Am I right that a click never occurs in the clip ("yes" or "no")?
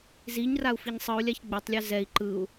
no